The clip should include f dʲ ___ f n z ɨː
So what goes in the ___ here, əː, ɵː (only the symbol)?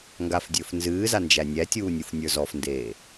ɵː